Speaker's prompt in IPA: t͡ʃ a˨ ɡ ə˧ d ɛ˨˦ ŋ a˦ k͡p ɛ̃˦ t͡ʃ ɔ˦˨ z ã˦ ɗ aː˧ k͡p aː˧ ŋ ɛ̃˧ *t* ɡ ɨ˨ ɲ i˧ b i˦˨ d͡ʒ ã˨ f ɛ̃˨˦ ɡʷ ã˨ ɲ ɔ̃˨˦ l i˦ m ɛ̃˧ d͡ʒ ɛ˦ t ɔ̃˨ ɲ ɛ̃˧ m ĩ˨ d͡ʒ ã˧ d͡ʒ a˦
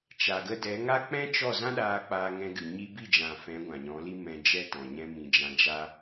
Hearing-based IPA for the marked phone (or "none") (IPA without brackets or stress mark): none